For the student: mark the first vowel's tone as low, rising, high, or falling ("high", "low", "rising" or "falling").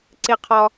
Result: high